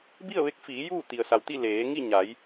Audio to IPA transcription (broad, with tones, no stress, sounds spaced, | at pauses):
b i˥˨ ə̯ ʋ e˧˥ k̚ f iː˩˧ j uː˥˨ t̪ i˩ ə̯ s a˩ w t̪ i˥˨ l eː˩˧ ŋ i˥˨ ɲ a˩˧ j